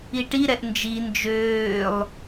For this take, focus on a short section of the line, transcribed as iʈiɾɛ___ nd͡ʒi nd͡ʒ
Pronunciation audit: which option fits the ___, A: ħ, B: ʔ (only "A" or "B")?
B